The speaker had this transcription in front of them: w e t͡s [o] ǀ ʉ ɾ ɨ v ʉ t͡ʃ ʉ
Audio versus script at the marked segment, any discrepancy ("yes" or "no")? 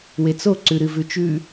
no